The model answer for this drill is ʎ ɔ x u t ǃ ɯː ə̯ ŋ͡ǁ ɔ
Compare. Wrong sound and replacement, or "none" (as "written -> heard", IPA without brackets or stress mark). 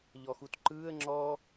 none